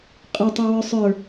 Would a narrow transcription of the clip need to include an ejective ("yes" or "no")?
yes